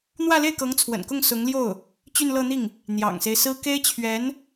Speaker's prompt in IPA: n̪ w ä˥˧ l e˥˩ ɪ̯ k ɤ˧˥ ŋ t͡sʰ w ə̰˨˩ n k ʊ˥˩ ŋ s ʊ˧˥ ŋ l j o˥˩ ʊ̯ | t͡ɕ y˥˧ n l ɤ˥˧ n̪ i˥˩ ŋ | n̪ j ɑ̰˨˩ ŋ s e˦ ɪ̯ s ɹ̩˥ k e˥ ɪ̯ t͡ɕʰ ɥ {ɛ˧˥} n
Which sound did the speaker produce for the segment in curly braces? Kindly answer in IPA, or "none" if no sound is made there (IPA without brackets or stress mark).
ɛ˧˥